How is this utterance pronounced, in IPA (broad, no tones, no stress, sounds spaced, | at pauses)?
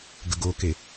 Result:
ɡ ə ɡ o k e